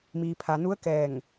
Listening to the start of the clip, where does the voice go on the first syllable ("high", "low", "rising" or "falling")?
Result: low